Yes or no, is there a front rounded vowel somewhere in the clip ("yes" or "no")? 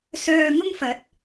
yes